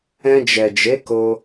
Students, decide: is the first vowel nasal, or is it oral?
nasal